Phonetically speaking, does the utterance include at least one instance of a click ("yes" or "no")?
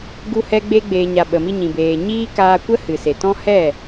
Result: no